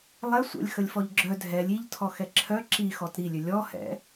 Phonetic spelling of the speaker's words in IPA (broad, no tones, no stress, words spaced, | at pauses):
lˠɛ sʷə̰lʲ xəlʲfɔʎɡ͡ǁœ dʱɛlʲ iʎtʰɔ xɛǁʰœ ǁi xɔtɾilʲø lʲɔhɛ̰